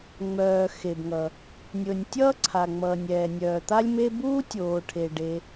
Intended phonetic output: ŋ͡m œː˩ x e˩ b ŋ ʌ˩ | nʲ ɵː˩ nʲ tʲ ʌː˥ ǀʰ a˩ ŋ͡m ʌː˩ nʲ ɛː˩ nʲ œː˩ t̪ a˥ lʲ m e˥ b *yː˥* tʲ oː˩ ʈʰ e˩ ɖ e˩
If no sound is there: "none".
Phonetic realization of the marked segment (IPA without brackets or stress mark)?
uː˥